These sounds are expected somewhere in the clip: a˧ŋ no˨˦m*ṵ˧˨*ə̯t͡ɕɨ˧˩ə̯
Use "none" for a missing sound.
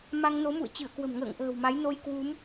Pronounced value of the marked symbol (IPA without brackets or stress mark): ṵ˧˨